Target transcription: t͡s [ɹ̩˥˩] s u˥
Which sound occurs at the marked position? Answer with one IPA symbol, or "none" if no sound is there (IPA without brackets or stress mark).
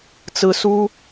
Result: ɹ̩˥